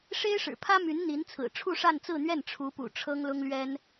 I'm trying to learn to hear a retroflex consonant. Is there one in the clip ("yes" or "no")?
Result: yes